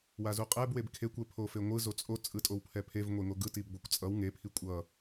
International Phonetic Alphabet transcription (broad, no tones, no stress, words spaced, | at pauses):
wazuqʼɛb webkʰekʷɛ pʰofeŋʷɯ zot͡sʼo t͡sʼɯtʼowpʰɛpʰev ŋʷeŋoɡɯ tibɡʷɛkʷt͡sʼʌw ŋepʰi kʷʼʌ